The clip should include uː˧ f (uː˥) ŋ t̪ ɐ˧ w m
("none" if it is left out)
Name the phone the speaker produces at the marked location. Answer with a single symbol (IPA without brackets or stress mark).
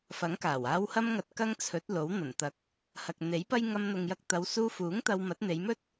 uː˨˥